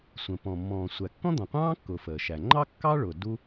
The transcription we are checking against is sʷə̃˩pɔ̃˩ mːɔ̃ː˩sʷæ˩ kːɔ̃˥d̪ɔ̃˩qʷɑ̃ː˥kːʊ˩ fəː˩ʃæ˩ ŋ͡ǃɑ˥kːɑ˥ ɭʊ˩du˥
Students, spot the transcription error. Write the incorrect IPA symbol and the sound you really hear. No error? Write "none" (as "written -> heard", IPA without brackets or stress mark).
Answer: none